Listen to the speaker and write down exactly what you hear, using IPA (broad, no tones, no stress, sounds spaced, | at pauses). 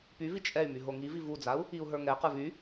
p y v i t͡ʃʼ ɛ y̯ m y ɦ o ŋ i v i v u d͡z a u̯ | i u̯ ɦ ə˞ ŋ ɛ q ə˞ v y